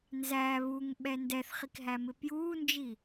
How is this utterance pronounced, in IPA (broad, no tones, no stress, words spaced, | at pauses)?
nzæ βuŋɓɛ ndɛθχikɦæmɪ pjuːnd͡ʒi